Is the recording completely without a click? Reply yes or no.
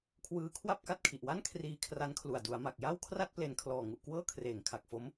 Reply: yes